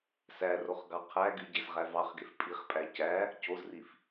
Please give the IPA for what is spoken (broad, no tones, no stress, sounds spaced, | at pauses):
s æ r o χ ɡ ɑ qʰ æ ɡ y ɟ e z ʁ æ v ɑ χ ɡ e f pʼ i χ pʼ æ c æ | c o z r i f